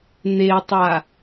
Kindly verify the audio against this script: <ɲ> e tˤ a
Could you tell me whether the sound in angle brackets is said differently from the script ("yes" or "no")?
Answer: yes